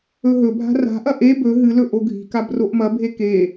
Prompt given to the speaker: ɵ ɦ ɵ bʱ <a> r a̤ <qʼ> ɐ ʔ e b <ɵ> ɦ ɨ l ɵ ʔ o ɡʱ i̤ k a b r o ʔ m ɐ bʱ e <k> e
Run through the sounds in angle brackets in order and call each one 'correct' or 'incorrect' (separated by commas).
incorrect, incorrect, correct, correct